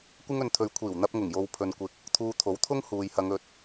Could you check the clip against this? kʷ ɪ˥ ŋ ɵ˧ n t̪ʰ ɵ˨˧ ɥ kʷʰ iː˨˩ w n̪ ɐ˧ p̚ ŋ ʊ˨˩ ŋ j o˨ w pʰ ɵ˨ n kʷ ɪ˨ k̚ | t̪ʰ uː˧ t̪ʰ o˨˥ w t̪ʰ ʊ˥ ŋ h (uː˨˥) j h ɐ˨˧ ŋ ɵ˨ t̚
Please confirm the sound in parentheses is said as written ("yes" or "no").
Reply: no